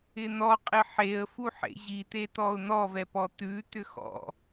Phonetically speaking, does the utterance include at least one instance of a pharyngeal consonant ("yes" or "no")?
yes